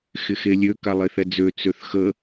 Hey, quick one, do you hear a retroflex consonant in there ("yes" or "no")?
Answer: no